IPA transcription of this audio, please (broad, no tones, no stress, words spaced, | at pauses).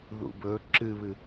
ðṵbɵ ǁɨβɨ